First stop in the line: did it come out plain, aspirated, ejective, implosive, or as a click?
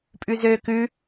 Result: ejective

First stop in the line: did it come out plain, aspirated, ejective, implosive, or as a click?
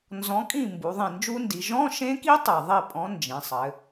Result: ejective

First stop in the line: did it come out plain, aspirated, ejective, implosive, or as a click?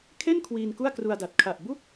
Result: aspirated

